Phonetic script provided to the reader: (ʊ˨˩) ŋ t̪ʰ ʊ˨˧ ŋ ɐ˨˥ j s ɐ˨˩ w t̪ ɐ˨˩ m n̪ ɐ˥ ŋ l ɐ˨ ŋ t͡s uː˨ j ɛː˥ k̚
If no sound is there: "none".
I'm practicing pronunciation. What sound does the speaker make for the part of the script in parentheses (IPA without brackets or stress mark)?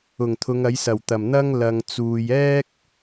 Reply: ʊ˨˩